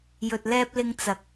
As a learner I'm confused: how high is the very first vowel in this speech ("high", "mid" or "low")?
mid